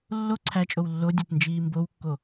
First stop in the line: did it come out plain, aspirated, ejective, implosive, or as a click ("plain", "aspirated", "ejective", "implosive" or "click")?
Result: click